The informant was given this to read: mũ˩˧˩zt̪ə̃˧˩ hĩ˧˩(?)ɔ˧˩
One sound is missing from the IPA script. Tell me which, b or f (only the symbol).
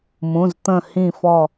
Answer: f